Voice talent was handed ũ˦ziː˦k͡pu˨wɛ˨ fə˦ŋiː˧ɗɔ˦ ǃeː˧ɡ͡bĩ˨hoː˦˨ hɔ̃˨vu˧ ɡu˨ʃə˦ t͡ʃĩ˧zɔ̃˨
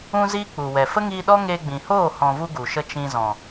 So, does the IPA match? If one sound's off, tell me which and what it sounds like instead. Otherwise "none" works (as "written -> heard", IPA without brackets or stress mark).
ǃ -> ŋ